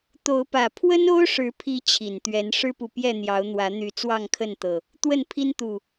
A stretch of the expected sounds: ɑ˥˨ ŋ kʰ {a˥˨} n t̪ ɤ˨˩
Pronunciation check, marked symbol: incorrect: ə˥˨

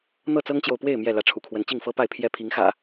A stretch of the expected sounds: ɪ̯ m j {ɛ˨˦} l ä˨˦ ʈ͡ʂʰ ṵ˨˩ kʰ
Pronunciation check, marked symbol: incorrect: ɛ˥˨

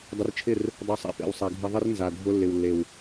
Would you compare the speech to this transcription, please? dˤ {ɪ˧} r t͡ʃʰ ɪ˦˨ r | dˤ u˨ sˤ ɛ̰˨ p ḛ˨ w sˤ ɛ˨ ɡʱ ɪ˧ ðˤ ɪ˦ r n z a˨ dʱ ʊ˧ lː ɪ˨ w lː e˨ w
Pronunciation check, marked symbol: correct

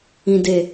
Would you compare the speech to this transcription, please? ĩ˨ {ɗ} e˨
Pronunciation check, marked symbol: incorrect: d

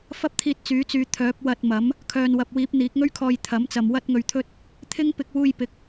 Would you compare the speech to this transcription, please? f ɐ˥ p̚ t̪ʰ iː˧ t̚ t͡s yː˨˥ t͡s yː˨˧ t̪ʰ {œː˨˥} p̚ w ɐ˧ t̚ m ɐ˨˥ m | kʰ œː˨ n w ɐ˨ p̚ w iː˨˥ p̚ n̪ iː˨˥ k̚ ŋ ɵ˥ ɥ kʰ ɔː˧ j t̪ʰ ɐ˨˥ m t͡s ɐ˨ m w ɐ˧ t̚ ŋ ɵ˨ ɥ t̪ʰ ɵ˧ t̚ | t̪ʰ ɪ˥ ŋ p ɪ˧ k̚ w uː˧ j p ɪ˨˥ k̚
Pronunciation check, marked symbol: correct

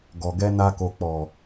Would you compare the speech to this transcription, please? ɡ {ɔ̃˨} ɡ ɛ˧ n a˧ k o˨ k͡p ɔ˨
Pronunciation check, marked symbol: incorrect: ɔ˨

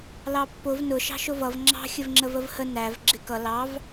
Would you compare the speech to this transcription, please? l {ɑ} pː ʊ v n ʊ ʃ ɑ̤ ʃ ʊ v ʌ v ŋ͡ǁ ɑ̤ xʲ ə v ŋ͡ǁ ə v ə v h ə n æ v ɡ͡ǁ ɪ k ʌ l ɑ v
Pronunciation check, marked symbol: correct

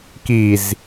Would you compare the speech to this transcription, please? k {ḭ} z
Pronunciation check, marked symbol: incorrect: i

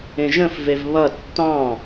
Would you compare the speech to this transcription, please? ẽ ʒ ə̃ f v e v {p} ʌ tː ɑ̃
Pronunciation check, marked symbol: incorrect: β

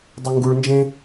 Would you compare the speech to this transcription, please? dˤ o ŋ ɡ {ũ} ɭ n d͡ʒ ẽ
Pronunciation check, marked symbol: incorrect: u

